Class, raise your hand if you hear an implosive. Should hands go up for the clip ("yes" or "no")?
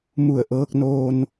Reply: no